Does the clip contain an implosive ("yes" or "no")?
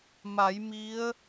no